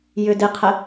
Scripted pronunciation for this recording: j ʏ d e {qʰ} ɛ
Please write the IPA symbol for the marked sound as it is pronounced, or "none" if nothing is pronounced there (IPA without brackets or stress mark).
qʰ